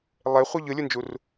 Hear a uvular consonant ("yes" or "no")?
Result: yes